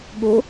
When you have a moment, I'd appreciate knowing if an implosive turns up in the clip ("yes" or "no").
yes